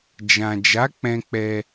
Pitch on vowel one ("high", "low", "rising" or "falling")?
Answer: low